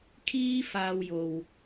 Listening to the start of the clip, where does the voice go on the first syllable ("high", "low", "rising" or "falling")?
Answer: high